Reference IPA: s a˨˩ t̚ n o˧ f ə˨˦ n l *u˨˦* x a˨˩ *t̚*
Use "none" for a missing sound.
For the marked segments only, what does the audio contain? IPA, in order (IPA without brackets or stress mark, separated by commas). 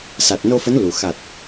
u˨˩, t̚